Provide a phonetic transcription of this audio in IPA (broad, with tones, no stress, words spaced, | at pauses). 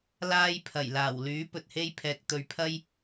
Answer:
laː˥jpʰɐ˨˩j laː˨˩wlyː˨˥ pɵ˨t̚he˥jpʰɛː˨k̚ t̪ɵ˨ɥpʰɐ˥j